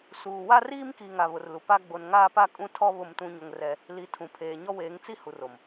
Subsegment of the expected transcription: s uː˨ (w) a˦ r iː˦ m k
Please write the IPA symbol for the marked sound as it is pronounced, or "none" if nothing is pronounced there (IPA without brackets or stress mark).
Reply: w